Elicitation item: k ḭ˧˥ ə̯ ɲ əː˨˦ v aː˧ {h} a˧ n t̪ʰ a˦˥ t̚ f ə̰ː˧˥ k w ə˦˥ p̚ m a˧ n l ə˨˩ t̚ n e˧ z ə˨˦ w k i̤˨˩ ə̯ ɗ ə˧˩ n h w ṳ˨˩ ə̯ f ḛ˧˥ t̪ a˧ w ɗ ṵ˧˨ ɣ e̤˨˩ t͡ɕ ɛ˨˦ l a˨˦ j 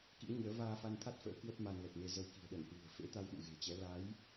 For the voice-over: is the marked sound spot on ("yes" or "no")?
no